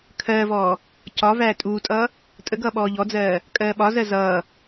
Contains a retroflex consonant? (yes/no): no